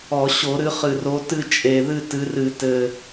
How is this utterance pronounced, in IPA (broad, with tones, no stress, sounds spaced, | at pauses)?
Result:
ɔ˧˩˧ ɕ o˧˩˧ ɾ ɨ˨˦ χ ɨ˨˩ r o˨˦ t ɨ˦˨ t͡ʃʼ e˨˩ ð ɨ˦˨ t ɨ˨˦ r ɨ˧˩˧ t ɘ˨˩